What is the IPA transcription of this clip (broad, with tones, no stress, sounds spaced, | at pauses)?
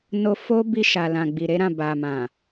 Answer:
n o˧ f o˦ b i˧ ʃ a˨ l ã˨ ɡ͡b i˨ ɾ e˨˦ ɾ ã˦˨ b a˨ m ã˨